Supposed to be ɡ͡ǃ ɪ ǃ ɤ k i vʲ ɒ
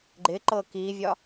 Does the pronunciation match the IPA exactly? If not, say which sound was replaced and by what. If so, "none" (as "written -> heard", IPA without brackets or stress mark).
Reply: none